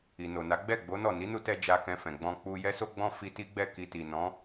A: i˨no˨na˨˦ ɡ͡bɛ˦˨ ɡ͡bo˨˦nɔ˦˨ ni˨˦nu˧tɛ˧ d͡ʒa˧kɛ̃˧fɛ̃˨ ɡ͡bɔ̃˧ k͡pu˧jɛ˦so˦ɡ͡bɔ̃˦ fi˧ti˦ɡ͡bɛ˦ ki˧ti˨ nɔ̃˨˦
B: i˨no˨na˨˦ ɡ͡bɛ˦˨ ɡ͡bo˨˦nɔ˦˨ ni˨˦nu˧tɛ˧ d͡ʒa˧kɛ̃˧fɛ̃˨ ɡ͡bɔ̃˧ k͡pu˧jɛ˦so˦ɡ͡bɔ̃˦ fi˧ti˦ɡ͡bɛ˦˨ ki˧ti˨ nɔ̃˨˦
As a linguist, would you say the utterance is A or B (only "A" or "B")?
B